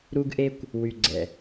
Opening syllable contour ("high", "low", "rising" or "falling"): high